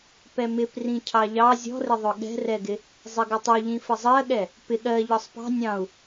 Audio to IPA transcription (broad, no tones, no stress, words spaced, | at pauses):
pɛmɪp rĩcʰɑʎɑ zʲɔ̤rɪðˤʊ ɠɛ̤rɛɡɪ | zˤɪɡɪtˤuʎĩ fəzˤɜɠɛ | pɪ ɠɜ ʎɒsˤpɑ̤ nʲɑ̃u̯